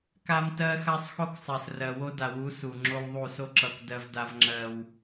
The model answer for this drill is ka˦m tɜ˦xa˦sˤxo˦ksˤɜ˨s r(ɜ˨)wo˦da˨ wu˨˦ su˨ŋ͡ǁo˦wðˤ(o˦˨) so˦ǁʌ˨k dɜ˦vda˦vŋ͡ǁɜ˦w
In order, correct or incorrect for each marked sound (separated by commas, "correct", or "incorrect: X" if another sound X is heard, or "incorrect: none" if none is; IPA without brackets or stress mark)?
correct, incorrect: u˦˨